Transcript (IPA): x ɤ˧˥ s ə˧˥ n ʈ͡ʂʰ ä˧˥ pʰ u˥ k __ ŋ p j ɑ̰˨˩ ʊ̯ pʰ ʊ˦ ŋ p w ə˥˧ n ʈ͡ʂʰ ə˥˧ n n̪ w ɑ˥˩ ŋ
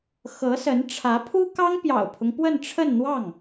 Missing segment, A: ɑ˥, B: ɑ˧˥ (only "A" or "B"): A